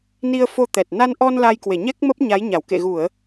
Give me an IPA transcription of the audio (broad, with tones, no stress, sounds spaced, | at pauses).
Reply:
n i˧ ə̯ f o˧ t̪ ɛ˨˩ t̚ n a˧ n ʔ ɔ˧ n l a˧ j k w e˧˩ ɲ ɛ˦˥ k̚ m ə˦˥ p̚ ɲ a˨˦ j ɲ a˧˩ w k ḛ˧˨ ɣ u˧˩˨ ə̯